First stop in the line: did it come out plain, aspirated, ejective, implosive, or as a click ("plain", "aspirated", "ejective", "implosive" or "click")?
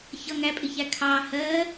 ejective